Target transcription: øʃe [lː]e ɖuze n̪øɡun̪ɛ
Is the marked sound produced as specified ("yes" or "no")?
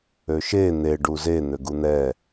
no